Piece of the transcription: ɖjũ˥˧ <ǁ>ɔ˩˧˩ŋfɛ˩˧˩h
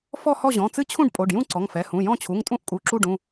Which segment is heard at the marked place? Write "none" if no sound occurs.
ǀ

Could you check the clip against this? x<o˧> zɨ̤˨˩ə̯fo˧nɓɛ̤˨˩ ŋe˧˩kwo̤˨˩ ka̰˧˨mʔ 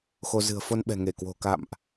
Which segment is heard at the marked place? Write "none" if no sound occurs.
o˧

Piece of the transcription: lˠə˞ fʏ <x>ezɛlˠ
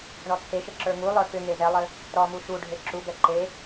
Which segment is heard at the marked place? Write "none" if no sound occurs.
ŋ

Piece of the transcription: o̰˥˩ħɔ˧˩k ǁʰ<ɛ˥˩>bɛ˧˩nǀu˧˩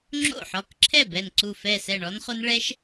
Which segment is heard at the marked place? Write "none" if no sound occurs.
ɛ˥˩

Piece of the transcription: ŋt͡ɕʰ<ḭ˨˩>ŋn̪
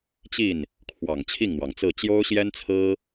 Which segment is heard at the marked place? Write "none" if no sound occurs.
i˥˩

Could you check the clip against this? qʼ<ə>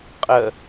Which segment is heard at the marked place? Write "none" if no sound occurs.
ə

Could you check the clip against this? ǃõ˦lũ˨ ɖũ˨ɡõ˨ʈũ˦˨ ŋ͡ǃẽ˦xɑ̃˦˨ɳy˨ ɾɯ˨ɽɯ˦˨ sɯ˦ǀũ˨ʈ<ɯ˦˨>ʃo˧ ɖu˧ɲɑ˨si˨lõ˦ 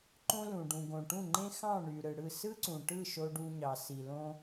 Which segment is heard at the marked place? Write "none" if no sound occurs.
ɯ˦˨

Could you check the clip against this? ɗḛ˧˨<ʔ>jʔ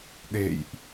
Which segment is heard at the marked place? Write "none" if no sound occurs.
none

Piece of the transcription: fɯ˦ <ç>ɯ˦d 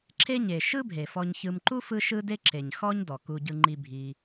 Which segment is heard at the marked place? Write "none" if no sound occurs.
ʃ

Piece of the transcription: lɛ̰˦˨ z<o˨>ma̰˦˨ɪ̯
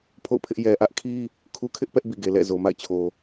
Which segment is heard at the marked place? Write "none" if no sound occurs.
o˨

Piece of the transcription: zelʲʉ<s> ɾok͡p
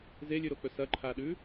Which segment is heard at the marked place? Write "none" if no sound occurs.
none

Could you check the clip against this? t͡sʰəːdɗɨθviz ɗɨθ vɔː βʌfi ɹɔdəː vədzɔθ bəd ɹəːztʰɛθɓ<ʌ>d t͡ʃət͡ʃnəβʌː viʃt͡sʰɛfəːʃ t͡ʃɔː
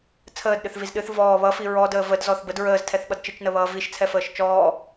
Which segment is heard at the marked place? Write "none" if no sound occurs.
ʌ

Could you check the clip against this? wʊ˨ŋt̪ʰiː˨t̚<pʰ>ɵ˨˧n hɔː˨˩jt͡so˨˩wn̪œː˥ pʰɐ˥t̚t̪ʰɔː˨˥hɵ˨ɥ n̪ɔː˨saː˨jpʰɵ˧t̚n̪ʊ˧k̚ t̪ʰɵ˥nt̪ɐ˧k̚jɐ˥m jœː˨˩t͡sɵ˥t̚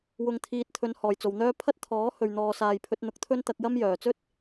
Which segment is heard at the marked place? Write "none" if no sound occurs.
t̪ʰ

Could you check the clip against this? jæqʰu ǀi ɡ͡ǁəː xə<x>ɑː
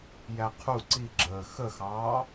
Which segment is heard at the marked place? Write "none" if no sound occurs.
x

